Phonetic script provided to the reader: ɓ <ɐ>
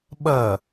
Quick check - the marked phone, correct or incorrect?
correct